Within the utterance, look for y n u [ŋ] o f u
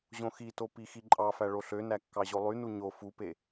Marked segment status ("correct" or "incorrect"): incorrect